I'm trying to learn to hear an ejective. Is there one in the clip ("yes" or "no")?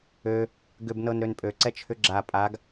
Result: yes